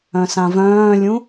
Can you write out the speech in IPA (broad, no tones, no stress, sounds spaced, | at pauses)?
œ̃ s ã v œ̃ː lʲ ũ